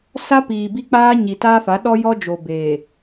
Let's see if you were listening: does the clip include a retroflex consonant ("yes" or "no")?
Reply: no